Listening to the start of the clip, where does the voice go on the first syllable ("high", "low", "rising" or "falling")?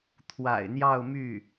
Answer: low